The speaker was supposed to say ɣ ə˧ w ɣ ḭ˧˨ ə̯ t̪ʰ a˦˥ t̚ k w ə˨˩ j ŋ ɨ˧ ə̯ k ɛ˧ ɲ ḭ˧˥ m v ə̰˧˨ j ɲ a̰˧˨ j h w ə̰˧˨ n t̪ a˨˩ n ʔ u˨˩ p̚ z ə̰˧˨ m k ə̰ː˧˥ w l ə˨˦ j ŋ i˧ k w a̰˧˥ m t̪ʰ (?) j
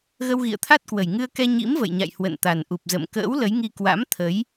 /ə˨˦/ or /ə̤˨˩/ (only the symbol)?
ə˨˦